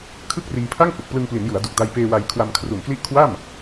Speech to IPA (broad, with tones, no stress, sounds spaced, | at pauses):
kʰ ɯ˥˩ k̚ r iː˧ pʰ a˥˩ ŋ h u˨˩ k̚ p l ɯ˧ ŋ p l i˩˦ n j u˩˦ a̯ d u˨˩ k̚ d a˧ j p eː˧ w a˧ j kʰ w a˧ m kʰ r u˨˩ n k l i˦˥ ʔ kʰ w a˥˩ m